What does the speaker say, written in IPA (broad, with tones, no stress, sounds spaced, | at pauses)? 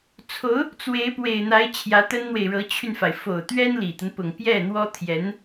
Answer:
t͡sʰ o˧˥ ʊ̯ | t͡s w e˧˥ ɪ̯ p w e˨˩ ɪ̯ n̪ a˧˥ ɪ̯ t͡ɕʰ j ä˧˥ t̪ ə˥ n n̪ w e˨ ɪ̯ ɻ ɤ˧˥ t͡ɕʰ y˧ n f a˩ ɪ̯ f o˨˩ ʊ̯ t̪ ɥ ɛ˥ n l i˨˩ t̪ ə˦ n p ʊ˨˩ ŋ p j ɛ˥˩ n̪ w ɔ˥ t̪ʰ j ɛ˧˥ n